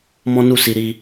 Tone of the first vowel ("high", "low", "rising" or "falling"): high